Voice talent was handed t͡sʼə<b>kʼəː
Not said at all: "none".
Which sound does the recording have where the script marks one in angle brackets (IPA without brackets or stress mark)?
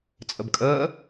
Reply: b